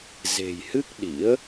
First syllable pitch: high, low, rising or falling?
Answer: low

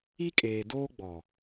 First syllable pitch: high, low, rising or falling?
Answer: high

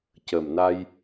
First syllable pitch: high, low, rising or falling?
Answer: low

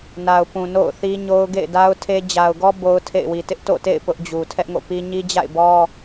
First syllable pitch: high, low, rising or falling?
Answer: low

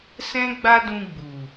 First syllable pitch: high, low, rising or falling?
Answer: high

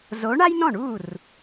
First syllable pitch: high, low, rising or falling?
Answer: rising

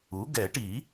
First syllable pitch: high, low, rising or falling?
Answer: rising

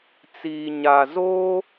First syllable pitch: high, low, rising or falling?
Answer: low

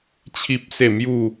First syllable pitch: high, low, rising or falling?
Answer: high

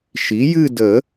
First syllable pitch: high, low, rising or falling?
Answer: rising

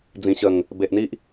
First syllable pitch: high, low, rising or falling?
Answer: low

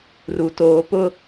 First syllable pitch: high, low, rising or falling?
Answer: low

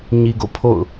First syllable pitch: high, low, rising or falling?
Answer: low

